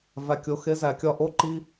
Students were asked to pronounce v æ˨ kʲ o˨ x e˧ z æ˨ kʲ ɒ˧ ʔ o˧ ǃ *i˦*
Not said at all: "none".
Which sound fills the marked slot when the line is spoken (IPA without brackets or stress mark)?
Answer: i˧